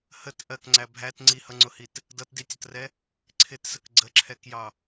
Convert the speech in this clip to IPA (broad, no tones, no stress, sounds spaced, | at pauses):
h ə t ʔ ɜ k ŋ͡ǀ æ bʱ æ t ŋ͡ǀ i h ʌ ŋ͡ǀ ʊ h i t | d ʌ t d i tʲ ʌ t r ɛ | ǀʰ ɪ t s ə k ɡ͡ǀ ə ǁʰ ɛ k j ɑ